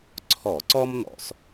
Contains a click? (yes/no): yes